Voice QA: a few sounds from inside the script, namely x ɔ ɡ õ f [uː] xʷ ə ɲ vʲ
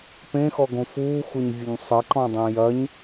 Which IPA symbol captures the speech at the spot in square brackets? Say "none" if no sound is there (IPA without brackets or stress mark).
uː